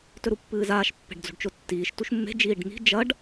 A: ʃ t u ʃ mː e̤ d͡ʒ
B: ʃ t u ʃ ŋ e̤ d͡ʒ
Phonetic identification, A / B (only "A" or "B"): A